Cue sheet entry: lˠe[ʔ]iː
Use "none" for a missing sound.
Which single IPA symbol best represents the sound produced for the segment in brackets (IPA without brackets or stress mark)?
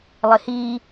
h